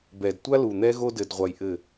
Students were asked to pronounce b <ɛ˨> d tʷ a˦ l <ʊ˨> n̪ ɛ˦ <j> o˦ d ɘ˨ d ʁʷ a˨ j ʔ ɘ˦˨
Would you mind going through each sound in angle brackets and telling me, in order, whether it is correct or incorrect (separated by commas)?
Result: correct, incorrect, incorrect